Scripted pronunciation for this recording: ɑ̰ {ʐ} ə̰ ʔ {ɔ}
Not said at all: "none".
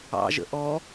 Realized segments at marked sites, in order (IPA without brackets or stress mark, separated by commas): ʒ, ɔ